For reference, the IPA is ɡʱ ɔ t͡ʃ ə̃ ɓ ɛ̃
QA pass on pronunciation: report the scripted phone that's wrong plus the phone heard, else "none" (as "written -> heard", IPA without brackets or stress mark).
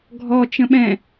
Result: none